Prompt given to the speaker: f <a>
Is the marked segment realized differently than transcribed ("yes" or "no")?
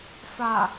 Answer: no